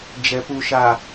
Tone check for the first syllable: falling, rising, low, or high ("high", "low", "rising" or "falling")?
low